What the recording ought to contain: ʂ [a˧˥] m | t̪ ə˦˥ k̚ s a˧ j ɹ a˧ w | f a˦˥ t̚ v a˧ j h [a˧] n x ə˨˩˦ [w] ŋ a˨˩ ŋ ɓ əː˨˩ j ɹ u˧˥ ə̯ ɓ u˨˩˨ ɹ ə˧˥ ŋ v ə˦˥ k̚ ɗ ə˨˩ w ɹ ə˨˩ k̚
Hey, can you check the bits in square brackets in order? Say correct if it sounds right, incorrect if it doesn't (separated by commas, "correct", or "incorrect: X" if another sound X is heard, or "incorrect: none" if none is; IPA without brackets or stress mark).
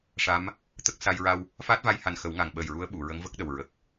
correct, incorrect: a˨˩, correct